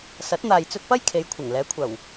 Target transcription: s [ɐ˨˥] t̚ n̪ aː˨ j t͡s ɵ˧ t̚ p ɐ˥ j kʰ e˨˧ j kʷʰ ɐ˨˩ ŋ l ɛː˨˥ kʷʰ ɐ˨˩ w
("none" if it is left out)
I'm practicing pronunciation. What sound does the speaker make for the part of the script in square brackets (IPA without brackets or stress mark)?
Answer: ɐ˨˥